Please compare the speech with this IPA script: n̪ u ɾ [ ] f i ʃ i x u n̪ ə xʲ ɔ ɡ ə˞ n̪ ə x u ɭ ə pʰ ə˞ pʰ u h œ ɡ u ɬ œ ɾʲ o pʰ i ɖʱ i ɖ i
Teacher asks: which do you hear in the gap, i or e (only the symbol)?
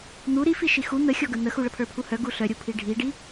i